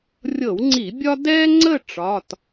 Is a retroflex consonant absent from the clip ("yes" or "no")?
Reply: no